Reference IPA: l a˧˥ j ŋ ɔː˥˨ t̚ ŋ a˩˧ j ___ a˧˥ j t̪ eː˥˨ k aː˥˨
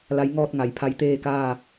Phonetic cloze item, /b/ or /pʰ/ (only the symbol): pʰ